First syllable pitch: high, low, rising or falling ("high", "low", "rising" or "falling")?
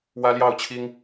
high